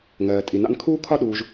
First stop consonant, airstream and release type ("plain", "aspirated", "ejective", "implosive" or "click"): ejective